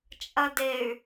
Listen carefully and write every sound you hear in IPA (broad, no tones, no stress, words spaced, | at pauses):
t͡ʃʼɐdey̯